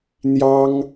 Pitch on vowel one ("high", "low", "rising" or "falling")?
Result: high